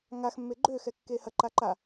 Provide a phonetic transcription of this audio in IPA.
ŋaxmːe ɡ͡ǃø xɛkːehɐǃa ǃa

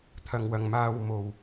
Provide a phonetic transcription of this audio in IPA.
t̪ʰɐ˧ŋwɐ˧ŋ maː˧w mo˨w

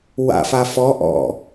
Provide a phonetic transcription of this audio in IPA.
wa̰fa fɔ ʔɔ̰

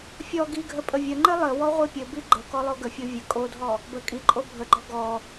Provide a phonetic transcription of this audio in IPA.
fʲɔ ɡiɡʱə pʼəvʲəŋ͡ǃɘ lˠɘwɔ ʁʷipʲɘbi ɡ͡ǃəkɔ lˠoɡəfʲo vʲə kʼodʱɔ | bə kʼiǃʼo bʱəɡ͡ǃɔ ɡɔ

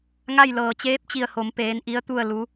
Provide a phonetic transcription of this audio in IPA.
ŋa˥˨jlɤː˧˩ t͡ɕeː˧˥p̚t͡ɕi˧˩ə̯ho˩˧m peː˧˥n ʔi˧˥ə̯t̪u˥˨ə̯ lu˧˥

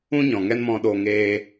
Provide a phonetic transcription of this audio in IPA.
ũ˦ɲɔ̃˨ŋɛ˦n mɔ̃˧ɗoː˧ ŋeː˦

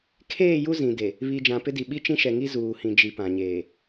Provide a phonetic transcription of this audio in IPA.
kʰeː˦˨ ju˦zĩ˨de˨ | βi˨ d͡ʒã˨pɪ˦di˨ ɓi˦t͡ʃĩ˦ʃɛ˨ŋi˦ zuː˨ hĩ˨d͡ʒi˨ pã˨ɲeː˨

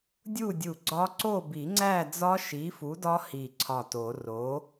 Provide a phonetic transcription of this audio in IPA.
dʲu˥˨dʲu˧˩ ɡ͡ǀɒ˦˥ ǀo˥˨bi˨˩˦ŋ͡ǀæ˥˨ d͡zɒ˦˥ʃi˨˥fu˨˥dɒ˦˥ hi˧˩ǀʰɒ˧˩to˨˩˦ ro˨˥

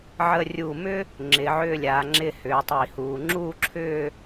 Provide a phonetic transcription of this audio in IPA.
ʕə˧rʲu˧˩mʏ˥ | ŋ͡ǁɪ˩˧ʕʏː˥˧lʲaː˩˧ ŋ͡ǁɪ˥˧hʏː˩˧ tˤi˧˩huː˧ ŋ͡ǁuː˥˧ǁʰʏː˥˧

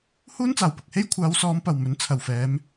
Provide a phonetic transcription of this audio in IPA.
huː˥nt͡saː˨˩wpʊ˨k̚he˥j kʷʰaː˨˧wsɔː˨˧mpɐ˨˩w mɵ˨˥nt͡sʰɐ˨˩wfɛː˨˧m

